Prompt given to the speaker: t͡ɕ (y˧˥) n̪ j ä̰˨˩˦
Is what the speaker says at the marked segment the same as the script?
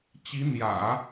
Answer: no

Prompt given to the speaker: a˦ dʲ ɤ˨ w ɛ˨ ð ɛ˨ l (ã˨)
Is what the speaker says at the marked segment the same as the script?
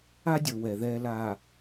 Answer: no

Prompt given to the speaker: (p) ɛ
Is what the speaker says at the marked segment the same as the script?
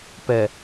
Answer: yes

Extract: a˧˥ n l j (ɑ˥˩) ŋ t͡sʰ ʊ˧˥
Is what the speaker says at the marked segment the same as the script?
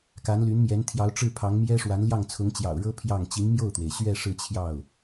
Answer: yes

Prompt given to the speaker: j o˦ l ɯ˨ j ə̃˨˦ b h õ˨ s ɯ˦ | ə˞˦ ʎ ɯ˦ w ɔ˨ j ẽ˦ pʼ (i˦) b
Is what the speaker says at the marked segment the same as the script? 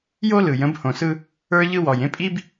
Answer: yes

